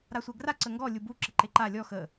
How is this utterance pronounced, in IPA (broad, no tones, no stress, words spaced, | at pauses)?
ɾasʷɛɡra ǀəŋɡɔ lʲubu ǁəǃeǃa lʲɔ xə